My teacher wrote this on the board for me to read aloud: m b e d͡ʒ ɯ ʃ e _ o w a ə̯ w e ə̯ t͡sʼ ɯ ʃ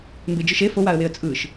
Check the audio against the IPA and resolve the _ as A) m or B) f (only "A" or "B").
B